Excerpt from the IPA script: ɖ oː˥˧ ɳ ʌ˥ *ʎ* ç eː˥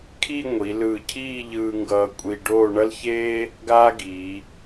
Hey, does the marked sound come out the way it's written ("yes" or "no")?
no